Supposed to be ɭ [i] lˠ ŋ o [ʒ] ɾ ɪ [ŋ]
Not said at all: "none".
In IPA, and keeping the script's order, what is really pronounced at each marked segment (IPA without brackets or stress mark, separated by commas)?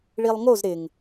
i, z, ŋ